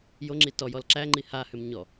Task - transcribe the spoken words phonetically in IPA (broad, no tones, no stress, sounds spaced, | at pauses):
j o ŋ͡ǁ i t ɔ j ɔ l ǁ æ ŋ͡ǃ i h a h ʏ m ɲ ɔ